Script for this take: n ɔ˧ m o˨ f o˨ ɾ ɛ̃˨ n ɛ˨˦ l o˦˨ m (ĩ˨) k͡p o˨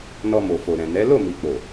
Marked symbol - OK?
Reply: no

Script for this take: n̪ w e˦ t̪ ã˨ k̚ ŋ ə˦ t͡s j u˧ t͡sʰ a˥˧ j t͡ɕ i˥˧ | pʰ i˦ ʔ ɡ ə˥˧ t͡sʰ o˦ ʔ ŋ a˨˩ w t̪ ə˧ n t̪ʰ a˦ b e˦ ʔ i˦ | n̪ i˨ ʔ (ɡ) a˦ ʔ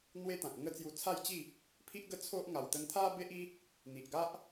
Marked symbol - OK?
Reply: yes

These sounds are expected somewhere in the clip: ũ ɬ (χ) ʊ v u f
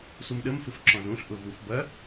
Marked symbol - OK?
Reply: no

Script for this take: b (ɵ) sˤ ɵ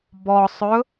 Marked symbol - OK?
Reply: no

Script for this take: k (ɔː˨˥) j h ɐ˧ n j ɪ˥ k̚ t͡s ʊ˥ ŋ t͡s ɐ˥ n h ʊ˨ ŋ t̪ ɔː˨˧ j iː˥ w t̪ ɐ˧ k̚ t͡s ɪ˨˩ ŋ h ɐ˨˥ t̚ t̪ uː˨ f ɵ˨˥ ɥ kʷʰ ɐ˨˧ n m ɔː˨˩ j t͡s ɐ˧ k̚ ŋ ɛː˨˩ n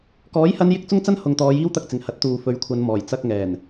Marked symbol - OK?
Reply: yes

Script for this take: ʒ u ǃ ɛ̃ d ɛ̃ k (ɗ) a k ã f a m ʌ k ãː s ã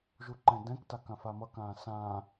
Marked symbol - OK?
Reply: no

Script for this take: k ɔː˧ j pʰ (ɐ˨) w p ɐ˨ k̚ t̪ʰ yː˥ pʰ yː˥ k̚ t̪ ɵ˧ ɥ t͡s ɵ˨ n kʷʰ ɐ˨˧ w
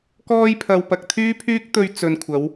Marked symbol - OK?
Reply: yes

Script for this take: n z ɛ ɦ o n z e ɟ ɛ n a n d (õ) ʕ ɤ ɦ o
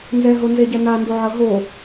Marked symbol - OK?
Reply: no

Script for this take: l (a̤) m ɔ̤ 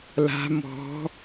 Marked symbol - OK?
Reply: yes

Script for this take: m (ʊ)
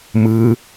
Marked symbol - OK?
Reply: no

